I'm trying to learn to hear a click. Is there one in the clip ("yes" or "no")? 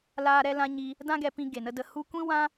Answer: no